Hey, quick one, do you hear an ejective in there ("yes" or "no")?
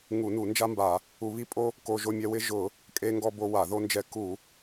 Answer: yes